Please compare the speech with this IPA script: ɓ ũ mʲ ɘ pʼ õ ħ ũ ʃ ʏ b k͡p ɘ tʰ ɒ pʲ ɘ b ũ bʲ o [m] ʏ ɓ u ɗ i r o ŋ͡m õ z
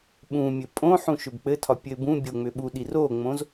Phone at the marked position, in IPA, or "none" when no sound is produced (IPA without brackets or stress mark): ŋ͡m